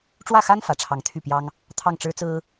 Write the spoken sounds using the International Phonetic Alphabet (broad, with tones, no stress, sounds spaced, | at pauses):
ʈ͡ʂ w ä˥˩ x a˥ n f ä˨˩ ʈ͡ʂʰ ɑ˧˥ ŋ t̪ʰ y˥˩ p j ɑ˥ ŋ | t̪ʰ ɑ˥˩ ŋ ʈ͡ʂ ɻ̩˥ t͡s ɹ̩˥